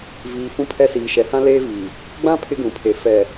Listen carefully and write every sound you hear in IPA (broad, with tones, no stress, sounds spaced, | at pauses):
v iː˨ f ũ˦ pʰ ɛ˦ s iː˨ ʃ ɛ˨ h ã˦ l eː˦ v iː˨ | ɡ͡b ã˦ pʰ ɪ˦ ɡ ũ˨ pʰ e˨ f ɛ˨